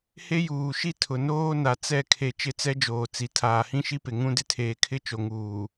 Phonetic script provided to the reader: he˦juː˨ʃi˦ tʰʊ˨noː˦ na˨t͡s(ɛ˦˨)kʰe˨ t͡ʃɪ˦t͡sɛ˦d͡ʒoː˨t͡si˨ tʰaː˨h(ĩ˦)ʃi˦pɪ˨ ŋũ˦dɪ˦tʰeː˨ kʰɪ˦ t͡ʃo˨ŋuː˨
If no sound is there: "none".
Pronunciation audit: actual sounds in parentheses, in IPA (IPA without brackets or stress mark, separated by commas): ɛ˦˨, ĩ˦